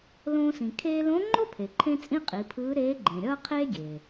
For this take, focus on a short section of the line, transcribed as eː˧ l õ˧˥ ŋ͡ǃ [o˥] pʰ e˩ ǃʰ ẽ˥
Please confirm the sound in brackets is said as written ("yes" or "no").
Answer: yes